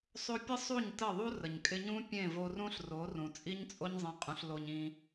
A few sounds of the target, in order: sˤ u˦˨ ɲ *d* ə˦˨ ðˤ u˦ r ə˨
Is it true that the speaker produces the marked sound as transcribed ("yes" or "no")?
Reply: no